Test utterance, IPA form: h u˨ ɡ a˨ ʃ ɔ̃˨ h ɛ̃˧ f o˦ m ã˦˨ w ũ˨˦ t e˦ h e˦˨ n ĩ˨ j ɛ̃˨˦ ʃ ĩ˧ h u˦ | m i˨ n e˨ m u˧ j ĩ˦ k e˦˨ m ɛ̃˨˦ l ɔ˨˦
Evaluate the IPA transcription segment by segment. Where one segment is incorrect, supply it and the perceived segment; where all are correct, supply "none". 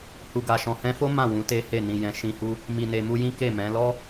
ɔ˨˦ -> ɔ˦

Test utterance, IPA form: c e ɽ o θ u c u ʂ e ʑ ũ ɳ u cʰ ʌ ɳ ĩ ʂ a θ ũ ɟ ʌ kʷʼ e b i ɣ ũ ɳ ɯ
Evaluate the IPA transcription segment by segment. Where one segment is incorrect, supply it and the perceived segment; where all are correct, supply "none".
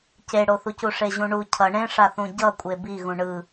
ĩ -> ẽ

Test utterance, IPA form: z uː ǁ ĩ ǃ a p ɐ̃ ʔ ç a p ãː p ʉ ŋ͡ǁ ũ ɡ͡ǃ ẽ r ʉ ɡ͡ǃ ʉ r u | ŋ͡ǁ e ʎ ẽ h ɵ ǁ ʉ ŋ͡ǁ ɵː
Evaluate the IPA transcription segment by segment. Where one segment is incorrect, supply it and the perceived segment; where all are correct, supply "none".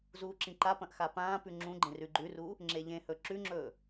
ç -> x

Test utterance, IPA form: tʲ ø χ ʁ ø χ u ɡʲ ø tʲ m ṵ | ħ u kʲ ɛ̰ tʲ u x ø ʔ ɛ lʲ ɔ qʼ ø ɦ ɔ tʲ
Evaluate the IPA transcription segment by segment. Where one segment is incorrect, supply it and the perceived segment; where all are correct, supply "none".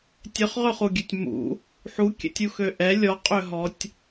none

